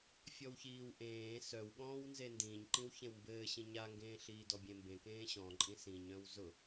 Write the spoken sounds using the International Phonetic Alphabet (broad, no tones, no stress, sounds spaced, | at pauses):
fʲ ɔ w ç iː w ʔ ẽː s œ w ɠ ɔ̃ː w n z e n d ĩ ɲ ǃ ĩ w ç ẽ w m b ɘː ɕ ĩ ɲ a ŋ ɡ ẽː ɬ iː d ɔ bʲ ẽ m b ẽ k ẽː ɕ ɔ̃ ǃʼ ĩ s ĩ ɲ œ̃ w z ʊ